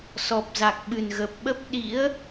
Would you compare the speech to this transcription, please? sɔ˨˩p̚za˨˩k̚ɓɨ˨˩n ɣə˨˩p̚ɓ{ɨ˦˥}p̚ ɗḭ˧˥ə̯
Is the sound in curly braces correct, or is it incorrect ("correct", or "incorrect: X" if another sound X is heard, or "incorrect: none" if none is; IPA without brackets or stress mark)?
incorrect: ə˦˥